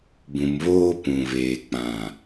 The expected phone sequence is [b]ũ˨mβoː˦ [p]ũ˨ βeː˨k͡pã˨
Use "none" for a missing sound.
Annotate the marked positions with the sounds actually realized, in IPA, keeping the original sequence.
b, p

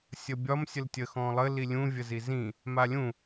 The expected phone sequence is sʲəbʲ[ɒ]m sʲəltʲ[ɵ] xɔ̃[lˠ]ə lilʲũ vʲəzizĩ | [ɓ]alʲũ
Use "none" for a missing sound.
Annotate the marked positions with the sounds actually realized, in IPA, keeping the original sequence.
ɒ, ə, lˠ, m

